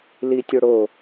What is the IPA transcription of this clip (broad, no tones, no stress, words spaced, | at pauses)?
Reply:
litʲoɽo